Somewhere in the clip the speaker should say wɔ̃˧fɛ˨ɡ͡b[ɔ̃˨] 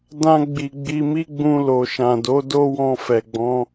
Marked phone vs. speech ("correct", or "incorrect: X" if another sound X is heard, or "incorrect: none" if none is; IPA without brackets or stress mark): incorrect: ɔ̃˨˦